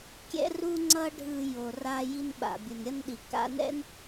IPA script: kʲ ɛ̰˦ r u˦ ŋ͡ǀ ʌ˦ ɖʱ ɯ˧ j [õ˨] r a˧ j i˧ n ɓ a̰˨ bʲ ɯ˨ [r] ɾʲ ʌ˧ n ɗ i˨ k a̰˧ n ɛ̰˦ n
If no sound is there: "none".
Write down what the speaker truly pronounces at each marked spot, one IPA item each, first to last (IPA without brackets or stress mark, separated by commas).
o˨, n